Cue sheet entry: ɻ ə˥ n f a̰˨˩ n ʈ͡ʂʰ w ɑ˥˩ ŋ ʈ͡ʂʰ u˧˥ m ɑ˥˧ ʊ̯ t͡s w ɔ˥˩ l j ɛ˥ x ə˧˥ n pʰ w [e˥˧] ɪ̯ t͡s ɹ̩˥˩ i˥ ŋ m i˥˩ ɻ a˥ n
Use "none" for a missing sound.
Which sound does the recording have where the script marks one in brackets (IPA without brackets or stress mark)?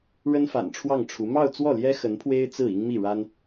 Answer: e˥